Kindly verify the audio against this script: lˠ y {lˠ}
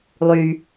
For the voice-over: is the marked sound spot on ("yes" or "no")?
no